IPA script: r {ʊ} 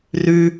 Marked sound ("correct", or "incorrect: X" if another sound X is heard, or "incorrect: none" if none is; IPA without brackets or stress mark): incorrect: ʉ